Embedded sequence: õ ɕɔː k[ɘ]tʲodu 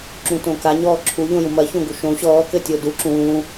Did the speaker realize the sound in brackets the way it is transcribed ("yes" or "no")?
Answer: yes